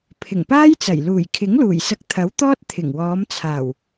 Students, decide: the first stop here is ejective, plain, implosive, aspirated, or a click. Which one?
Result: aspirated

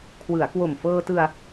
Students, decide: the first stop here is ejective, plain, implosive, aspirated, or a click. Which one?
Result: aspirated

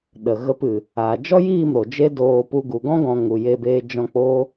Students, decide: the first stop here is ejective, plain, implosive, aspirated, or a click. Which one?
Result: implosive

